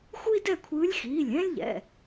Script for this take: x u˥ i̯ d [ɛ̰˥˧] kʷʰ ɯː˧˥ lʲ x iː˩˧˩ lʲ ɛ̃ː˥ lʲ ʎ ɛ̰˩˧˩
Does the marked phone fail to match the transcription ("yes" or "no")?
yes